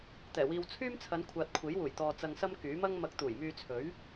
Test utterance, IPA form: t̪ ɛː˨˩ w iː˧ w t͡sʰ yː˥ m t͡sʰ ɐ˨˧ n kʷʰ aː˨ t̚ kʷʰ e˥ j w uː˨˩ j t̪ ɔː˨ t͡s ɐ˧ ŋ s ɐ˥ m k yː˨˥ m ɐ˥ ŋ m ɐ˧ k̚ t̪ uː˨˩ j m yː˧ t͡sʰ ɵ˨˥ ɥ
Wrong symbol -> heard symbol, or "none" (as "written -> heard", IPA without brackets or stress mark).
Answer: e˥ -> e˨˥